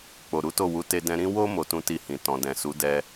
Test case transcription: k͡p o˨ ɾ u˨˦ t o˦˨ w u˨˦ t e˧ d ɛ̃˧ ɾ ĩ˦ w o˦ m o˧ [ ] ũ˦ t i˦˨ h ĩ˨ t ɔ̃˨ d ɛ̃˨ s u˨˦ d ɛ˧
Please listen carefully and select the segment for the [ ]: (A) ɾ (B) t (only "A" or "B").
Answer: B